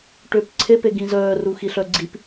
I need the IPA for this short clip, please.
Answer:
ʈ ʏː p ǀʰ e p e ɡ ĩ z œː r u x i ɬ œ ɡ͡ǀ i p

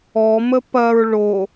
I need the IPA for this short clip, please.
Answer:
ɔ m ə p ɐ ɹ ɭ o

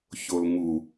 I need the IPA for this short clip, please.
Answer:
ç o l ŋ u

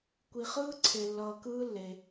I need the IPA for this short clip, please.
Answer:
kʷ i˧ χ ɯː˥ ǀʰ e˧ lː ʌː˧ k ɯː˥ lː e˧

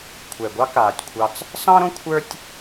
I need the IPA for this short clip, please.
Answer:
kʷʰ ɛ˨ ɡʷ ɑ˦ k aː˨ tʲ kʷʰ ɑ˧ t͡s | s ɑ̃˦ ɾ õ˦ kʷʰ ə˞˦ tʲ

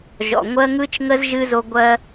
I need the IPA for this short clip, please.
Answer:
ʒ ɔ̰˩ ŋʷ ɜ˧ ŋ ɯ˧ t͡ʃ ŋ ə˧ z ʒ ɨ˧ z o˧ ɡʷ ɜ˧

